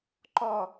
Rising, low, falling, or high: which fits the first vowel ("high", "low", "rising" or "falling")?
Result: falling